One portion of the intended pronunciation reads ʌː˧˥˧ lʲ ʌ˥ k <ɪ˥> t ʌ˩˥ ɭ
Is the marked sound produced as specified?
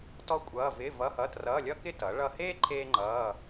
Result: yes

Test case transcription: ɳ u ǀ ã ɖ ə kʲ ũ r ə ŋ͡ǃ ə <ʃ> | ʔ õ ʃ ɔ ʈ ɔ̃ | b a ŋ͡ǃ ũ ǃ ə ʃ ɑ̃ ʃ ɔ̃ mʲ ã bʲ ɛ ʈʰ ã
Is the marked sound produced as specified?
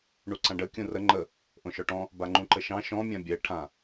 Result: no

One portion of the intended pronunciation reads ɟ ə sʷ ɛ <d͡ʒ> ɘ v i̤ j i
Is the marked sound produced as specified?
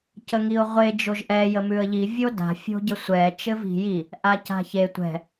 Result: no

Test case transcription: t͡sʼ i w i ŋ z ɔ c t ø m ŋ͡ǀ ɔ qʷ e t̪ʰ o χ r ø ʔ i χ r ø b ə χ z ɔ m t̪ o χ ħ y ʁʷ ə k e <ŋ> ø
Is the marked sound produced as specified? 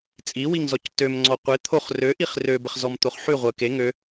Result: yes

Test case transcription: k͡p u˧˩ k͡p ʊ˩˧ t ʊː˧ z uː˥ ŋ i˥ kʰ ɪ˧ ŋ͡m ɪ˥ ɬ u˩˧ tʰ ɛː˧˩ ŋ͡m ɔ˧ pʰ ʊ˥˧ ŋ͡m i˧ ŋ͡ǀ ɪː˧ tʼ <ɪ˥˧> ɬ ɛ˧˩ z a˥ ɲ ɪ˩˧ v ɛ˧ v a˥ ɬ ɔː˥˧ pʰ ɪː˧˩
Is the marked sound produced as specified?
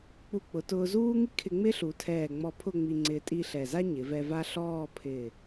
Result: no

